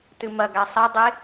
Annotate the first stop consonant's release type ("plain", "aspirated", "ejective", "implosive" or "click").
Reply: plain